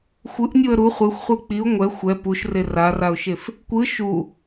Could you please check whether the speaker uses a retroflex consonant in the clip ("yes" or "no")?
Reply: no